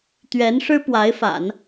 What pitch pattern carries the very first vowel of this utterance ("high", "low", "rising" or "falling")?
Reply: rising